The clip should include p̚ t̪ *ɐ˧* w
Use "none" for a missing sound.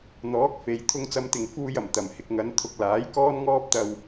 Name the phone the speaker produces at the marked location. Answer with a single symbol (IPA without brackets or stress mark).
ɐ˧